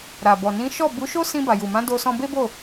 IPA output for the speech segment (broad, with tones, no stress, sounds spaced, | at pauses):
ɾ a˨ b ɔ˨ n ĩ˨˦ ʃ ɔ˦˨ b u˨˦ ʃ o˦ s ĩ˧ b a˨ j u˨ m ã˨˦ d o˧ s ɔ̃˧ b e˦ b o˦˨